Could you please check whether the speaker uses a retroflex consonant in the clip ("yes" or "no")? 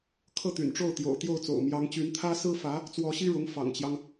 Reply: yes